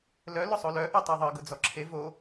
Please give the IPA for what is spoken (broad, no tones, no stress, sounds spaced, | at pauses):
l œ l ʊ sˤ o l œ ʔ œ tˤ ɤ ðˤ ɤ ɡ ʊ d͡z ɔ ǁʰ e v o